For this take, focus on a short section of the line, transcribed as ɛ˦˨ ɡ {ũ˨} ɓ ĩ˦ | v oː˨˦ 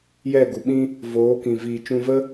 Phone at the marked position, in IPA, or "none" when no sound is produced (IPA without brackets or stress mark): u˨